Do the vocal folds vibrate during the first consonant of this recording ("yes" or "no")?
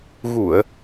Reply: yes